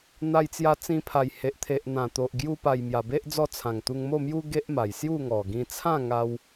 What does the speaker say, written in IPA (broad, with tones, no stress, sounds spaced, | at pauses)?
n̪ a˧ j t͡s j a˧ t͡s ĩ˧ pʰ a˨˩ j h e˨ ʔ t̪ʰ e˨ ʔ n̪ ã˨˩ t̪ o˨ ʔ ɡ j u˧ p a˨˩ j m j a˨˩ b e˦ ʔ d͡z ɔ˦ t͡sʰ ã˨˩ ŋ t̪ u˧ ŋ m o˥˧ m j u˦ ɡ e˦ ʔ m a˨˩ j s j u˥˧ ŋ ɔ˨˩ ɡ ĩ˧ t͡sʰ ã˥˧ ŋ a˧ w